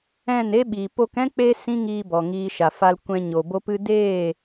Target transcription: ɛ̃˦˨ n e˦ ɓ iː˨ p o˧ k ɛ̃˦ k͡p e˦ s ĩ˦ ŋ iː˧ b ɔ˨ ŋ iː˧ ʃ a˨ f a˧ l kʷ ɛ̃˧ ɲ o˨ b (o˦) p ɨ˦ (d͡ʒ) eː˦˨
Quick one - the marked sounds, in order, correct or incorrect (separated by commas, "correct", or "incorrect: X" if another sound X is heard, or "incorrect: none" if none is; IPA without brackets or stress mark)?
correct, incorrect: d